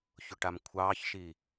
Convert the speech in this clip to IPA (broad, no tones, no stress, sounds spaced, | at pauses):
ç ʊ ʈ a m kʷʰ ɑ ç ʃ i